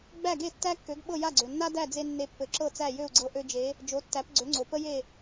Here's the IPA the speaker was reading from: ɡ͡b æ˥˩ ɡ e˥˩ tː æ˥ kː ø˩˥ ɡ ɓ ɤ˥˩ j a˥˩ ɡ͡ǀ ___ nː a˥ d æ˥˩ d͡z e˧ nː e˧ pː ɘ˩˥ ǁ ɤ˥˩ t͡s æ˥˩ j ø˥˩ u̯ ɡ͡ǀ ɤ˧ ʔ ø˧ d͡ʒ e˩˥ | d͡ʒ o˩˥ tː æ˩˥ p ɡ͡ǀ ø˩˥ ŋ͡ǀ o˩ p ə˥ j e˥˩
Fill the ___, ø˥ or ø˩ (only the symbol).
ø˩